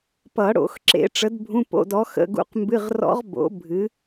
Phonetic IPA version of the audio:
p ʌ˨˩˦ ɽ o̰˨˩˦ x ǁ ḛ˨˥ ʈ͡ʂ ə˨˥ d bʱ ũ˧˥˧ p o̰˧˥˧ d ɔ˨˥ x ə̰˧˥˧ ɡ ṵ˦˥ q m b ɨ˧˥˧ ʁ r ɔ̰˦˥ ʁ b o̰˨˥ bʱ ɨ˨˥

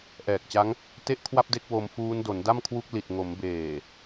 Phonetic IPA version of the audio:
ʔ ɛː˨˩ k̚ t͡ɕ a˦˥ ŋ | t e˥˩ ʔ kʰ w a˥˩ p̚ d e˦˥ k̚ w o˧ m f uː˦˥ n d o˩˦ n d a˥˩ m kʰ w u˦˥ k̚ l i˨˩ t̚ ŋ o˩˦ m b eː˨˩

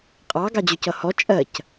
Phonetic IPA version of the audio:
qʼ ɑ ɡ ɑ d͡ʑ ʊ c ʌ h ɔ t͡ʃʼ ɜ c

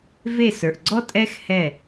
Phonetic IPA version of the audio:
v e˦˨ s ə˞˨ ʔ ɡ͡ǀ ɔ˦ tʼ ɛ˦ x h ɛ˦˨

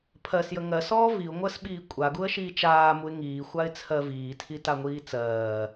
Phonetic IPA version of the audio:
pʰ ɜ s j ə ŋ ɜ s ɔː v i ʊ̯ ŋʷ ɜ s ɓ iː kʷʼ a ɡ u ə̯ ʃ iː t͡ʃ aː m u ɪ̯ ŋ iː xʷ a ɪ̯ t͡sʰ ɜ v iː tʰ i t a ŋʷ iː t͡s ɜː

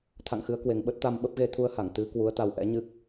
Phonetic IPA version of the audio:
t̪ʰ a̰˧˨ ŋ x ɨ˨˦ ə̯ k w e˨˩ ŋ ɓ ə˦˥ t̚ t̪ a˧ m ɓ ə˦˥ p̚ ɣ e˧ t̪ʰ u˧ ə̯ h a˧˩ ŋ t̪ ɨ˨˦ k w u˨˦ ə̯ t̪ a˧ w ʔ ɛ̰˧˥ ɲ ɨ˦˥ k̚

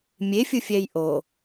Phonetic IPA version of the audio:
mʲ e fʲ ɯ fʲ ɛ j ʔ o

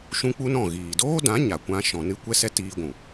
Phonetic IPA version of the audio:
ʃ ũ˦ k͡p u˦ n ɔ̃˦˨ ɣ iː˨ d oː˦ d ã˨˦ ɲ a˨ kʷ ã˧ ʃ ɔ̃˨ n ɨ˦ kʷ ɛ˧ s ɛ˧ t iː˧ ɡʷ ũ˨

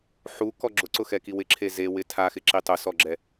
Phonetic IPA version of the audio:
ħ u k ɔ ɡ͡ǁ ʊ ǀ ʊ x ɛ k i w ɪ ǁʰ e z e w ɪ tʰ a x ɪ ǁ i tˤ ʊ s ɔ ɡ͡ǁ ɛ

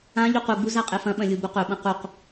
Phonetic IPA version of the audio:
ã ʎ u q u ɡ͡b u z a qʼ e f ɐ̃ ɓ ɐ̃ lʲ u b u q ɵ ɓ ɐ̃ q u q

